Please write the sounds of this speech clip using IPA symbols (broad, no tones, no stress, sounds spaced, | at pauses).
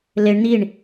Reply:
l e ɳ n̪ i ɳ